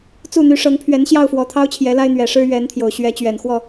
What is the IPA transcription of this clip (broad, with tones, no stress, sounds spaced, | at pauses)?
t͡s u˥˨ n̪ y˨˦ ʂ ɤ˨˦ ŋ pʰ ɥ ɛ˨˦ n ɕ j ɑ˥˨ ʊ̯ f w ɔ˨˩ t̪ʰ ɑ˦ ʊ̯ t͡ɕʰ j ɛ˨˦ l a˦ ɪ̯ n̪ ɥ ɛ˨˩ ʂ ɻ̩˦ ɥ ɛ˨˦ n t̪ʰ j o˨˩ ʊ̯ ɕ ɥ ɛ˨˦ t͡ɕ ɥ ɛ˨˩ n x w ɔ˥˨